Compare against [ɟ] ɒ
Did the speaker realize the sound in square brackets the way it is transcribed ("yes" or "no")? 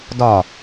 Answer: no